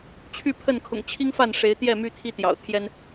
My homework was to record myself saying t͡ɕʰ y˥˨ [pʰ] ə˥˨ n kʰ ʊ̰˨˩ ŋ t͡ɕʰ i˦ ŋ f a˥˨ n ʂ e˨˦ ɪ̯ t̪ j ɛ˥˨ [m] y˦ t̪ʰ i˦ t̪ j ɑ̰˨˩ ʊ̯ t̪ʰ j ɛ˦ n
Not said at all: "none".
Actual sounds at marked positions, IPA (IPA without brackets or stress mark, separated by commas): pʰ, m